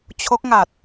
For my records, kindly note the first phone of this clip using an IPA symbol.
t͡ɕʰ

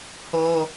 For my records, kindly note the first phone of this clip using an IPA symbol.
h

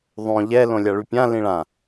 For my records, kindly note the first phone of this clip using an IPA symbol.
ðˤ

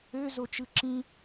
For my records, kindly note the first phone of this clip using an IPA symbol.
ø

